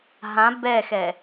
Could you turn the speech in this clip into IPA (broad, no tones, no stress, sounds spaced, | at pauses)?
ɦ ã b ɛ x ɛ